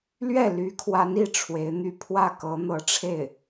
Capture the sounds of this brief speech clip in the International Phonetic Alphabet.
l ɥ ɛ˥˩ l y˧˥ kʰ w a˧˥ n i˥˩ ʈ͡ʂʰ w e˧˥ ɪ̯ n̪ y˥˧ pʰ w ä˥˩ k ɤ˧˥ n̪ ɤ˧˥ ʈ͡ʂʰ e˥˩ ɪ̯

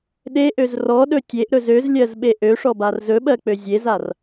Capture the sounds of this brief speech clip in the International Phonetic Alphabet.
ɗ e ʔ ø z r ɔ ɗ ɵ tʲ e ʔ ɾ ɵ z ø z lʲ ɜ z ɓ e ʔ ø ʂ ɔ b a r z ɵ ɓ ɜ k͡p ø zʲ e z a r

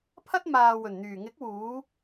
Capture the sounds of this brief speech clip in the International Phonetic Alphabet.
pʰ ɐ˥ t̚ m aː˨ w ɵ˨˩ n n̪ yː˨˩ ŋ ɪ˨˥ k̚ w uː˨˧

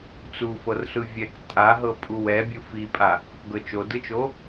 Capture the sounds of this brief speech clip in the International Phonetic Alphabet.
t͡s u f ɤ r ɬ ɯ vʲ ɛ k tʼ a ɦ ɤ pʼ u w ɛ bʲ ɯ f i pʼ a | ɡ ɤ t͡ʃ o d ɯ t͡ʃ o

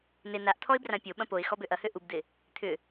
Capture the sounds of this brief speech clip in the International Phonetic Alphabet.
n ɪ n a ʔ t̪ʰ ɔ ɪ̯ b r ã pʲ o ɓ ɐ̃ p o ɪ̯ x ɔ b ø ʔ ɐ h ø ʔ u b d̪ ɪ | t̪ʰ ʏ

